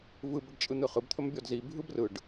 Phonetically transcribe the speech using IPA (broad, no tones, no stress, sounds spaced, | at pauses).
v ɯ b ə ɖ t͡ʃʼ ɯ n̪ ɯ χ ɯ b t̪ʰ ɵ m bʲ ɔ d z i bʱ ɯ b r ɯ ɖ